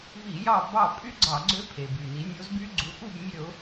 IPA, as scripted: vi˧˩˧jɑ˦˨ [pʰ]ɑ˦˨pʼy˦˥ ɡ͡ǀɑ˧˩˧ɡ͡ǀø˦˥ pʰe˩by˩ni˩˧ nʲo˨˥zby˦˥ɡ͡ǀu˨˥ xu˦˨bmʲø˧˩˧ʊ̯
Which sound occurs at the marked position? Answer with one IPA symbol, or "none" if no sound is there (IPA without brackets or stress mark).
b